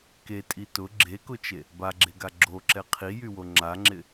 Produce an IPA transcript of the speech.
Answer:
k e tʼ i t ʊ ɡ͡ǁ e k ʊ t͡ʃ e | b a ɡ͡ǁ e ɡ a ɡ͡ǁ o ǁ ɛ qʰ i j y w o ŋ͡ǁ a ŋ͡ǁ ɪ

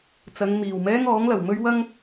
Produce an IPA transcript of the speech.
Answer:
t͡s ɐ˨˧ ŋ m iː˨˩ w m ɛː˥ ŋ ɔː˨˥ ŋ l ɐ˨˩ w m ɵ˥ ɥ w ɐ˥ ŋ

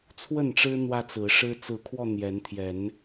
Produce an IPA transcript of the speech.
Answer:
t͡sʰ w ə˥˨ n ʈ͡ʂ ɻ̩˦ n̪ w ä˦ t͡s ɹ̩˨˦ ʂ ɻ̩˦ t͡s ɹ̩˨˦ kʰ w ɔ˧ n̪ j ɛ˨˦ n t̪ʰ j ɛ˨˦ n

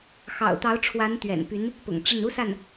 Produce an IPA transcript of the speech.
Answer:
x ɑ̰˨˩ ʊ̯ t̪ ɑ˧˥ ʊ̯ ʈ͡ʂʰ w a˧˥ n t̪ ɥ ɛ̰˨˩ n p y˧˥ n | p ʊ̰˨˩ ŋ ʈ͡ʂ ə˥˩ n u˥ s a˥˩ n

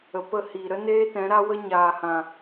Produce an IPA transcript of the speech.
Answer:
ə˨ p ə˦˨ h iː˨ ɾ ə˦ n eː˦ t ɛ̃˨˦ ɾ a˦ w ə˦ ɲ aː˨ h ã˨

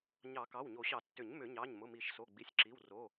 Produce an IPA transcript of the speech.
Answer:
ɲ ɑ˨˩˦ k ɑ˩˧˩ w ɲ o˨˩˦ ɕ ɑ˨˩˦ tː ʏ˨˩˦ ɲ m ʏ˨˩˦ ɲ ɑ˩˧˩ ɲ m ʊ˩˧˩ m i˨˩˦ ʃ s o˩˧˩ ɡ͡b i˩˧˩ sʲ ǁ i˩˧˩ w r o˩˧˩

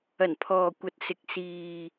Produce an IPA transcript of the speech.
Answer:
ɐ˨˩ n pʰ ɔː˨ kʷ ɐ˨ t̚ s ɪ˨ k̚ s iː˨

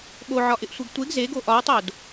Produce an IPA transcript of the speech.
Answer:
ɠ o ʕ ɒ ʔ ɪ ʔ sʷ e ɡ tʷ e ɡ z e ɡ o ʔ ɒ w tˤ o d

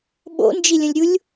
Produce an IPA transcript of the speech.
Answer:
ɓ o̰ n d͡ʒ i lʲ ə̃ lʲ ɾʲ u lʲ

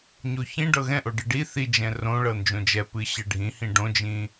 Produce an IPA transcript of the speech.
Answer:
ɲ o ç ĩ ɖ ɤ ɣ ɛ̃ ʔ o ɖ ɨ ɖ i θ i d͡ʒ ɛ̃ r õ ɭ ɤ n d͡ʒ õ d͡ʒ ɛ p ɨ ɕ ɛ ɖʱ ĩ h ĩ ɖ õ d͡ʒ ĩ

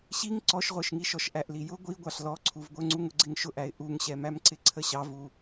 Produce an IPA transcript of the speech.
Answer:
ɕ i ŋ ǀ ɔ ʃ ʁʷ ə˞ ʃ ŋ i ʃ ɔ ʃ ʔ æ ʔ l i j ʊ ɡʷ i ɡʷ ɑ ɬ l ɔ ǀʰ u v ɡʷ ə˞ ŋ͡ǀ u ŋ ʊ ɡ͡ǀ ɪ ŋ ʃ ʊ ʔ æ ɪ̯ ʔ u ŋ ɕ ɛ m æ m ǀ ɪ ǀʰ ə ɕ ɑ v u

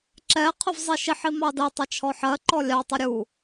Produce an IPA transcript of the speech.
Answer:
ǁ ɛ qʰ ʊ v zˤ i ʃ i ħ i m ɑ d ɜ tˤ ʌ t͡ʃʰ ɔ ħ ɜ ǃ ɔ lʲ ɑ tˤ ʊ ɾʲ u

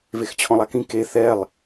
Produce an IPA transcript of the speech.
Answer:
v e x t͡ɕʰ ɔ̃ lˠ a k ĩ k e θ ɛ lˠ

